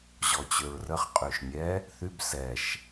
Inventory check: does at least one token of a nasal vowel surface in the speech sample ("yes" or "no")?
no